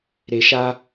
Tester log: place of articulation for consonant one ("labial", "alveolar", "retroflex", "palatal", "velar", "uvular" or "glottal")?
alveolar